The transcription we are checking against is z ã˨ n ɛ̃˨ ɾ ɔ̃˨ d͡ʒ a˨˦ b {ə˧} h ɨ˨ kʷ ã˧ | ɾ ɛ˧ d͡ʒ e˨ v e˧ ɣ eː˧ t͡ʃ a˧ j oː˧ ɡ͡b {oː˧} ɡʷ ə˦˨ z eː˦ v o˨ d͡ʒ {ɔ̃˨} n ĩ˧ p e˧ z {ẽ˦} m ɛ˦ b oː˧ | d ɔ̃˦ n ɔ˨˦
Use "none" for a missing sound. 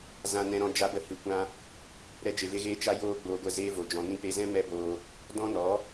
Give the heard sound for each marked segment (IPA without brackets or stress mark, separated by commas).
ə˨, oː˧, ɔ̃˨, ɛ̃˦